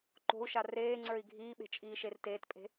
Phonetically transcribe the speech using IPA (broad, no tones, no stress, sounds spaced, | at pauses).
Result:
ǃ o̤ u̯ ʃ a r eː ŋ͡ǀ ə˞ i̯ ɡʱ iː ɓ e̤ t͡ʃʼ iː ʃ e r t eː t pʼ e̤